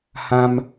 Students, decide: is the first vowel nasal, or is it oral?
nasal